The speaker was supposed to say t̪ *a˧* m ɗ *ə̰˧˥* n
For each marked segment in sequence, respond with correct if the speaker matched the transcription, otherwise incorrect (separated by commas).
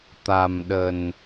incorrect, incorrect